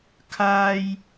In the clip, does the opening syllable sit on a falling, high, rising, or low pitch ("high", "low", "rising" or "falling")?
high